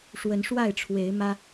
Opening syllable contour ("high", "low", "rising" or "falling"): rising